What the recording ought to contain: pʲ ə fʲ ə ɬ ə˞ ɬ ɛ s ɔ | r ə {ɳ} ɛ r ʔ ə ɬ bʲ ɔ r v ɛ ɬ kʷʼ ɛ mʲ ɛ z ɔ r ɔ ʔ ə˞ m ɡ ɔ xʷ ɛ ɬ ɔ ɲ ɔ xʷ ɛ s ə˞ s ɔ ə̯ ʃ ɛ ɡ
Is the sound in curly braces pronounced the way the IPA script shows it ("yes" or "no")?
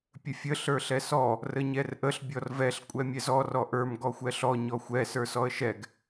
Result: no